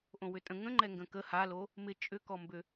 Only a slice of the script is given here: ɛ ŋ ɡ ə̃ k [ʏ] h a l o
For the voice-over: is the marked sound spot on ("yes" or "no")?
no